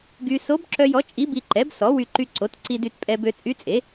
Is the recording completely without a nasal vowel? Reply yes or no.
yes